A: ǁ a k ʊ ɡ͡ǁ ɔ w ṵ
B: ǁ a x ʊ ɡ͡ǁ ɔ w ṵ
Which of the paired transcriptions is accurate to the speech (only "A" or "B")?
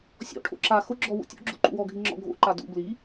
B